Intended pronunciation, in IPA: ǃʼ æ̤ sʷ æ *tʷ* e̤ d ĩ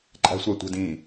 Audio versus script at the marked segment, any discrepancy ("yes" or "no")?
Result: no